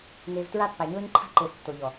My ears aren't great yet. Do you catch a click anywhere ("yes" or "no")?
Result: yes